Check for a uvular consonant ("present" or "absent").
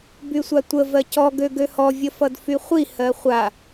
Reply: present